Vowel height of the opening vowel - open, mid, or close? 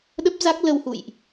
mid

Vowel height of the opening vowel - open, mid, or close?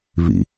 close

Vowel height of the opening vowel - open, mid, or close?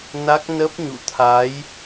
open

